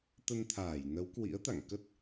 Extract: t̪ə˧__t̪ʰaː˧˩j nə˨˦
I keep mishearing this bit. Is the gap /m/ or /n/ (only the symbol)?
n